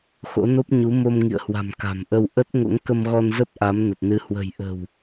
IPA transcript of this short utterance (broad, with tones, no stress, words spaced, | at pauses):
xo̰˧˥no˦˥p̚ ɲu˨˦mo˧mŋḭ˧˨ə̯hwa̤˨˩m ka̤˨˩mʔə˧w ʔə˦˥t̚ ŋo̰˧˥ŋkə˧mɣɔ˧n zə˦˥p̚ ʔa˨˦mnə˨˩t̚nɨ˨˦ hwə̤˨˩jʔə̤˨˩w